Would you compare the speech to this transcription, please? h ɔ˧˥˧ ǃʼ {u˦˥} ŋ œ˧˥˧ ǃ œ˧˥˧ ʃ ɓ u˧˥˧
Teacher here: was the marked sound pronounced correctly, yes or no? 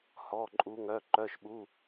yes